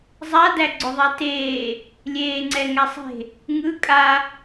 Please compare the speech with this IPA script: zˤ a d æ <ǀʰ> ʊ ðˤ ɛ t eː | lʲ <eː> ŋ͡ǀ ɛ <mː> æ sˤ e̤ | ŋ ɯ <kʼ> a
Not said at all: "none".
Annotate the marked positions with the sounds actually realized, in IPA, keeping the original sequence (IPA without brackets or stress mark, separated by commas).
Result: ɡ͡ǀ, eː, ŋ, kʼ